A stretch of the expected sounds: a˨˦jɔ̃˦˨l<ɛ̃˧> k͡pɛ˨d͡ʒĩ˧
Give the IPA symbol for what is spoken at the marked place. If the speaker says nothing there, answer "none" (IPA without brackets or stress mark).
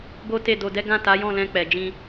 ɛ̃˧